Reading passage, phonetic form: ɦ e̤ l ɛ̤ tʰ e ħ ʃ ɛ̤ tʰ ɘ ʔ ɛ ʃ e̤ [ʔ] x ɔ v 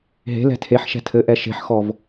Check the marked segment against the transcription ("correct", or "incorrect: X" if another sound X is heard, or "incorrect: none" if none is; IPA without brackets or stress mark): incorrect: ħ